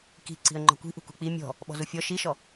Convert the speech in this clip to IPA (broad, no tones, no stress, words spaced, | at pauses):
ki̤ ǀi̤ə̯ŋ͡ǃɔ̤kʷi̤ʔṳ kṳk͡pi mʲɔ̤ | ɓɔ̤zufʲɔ ʃiʃɔ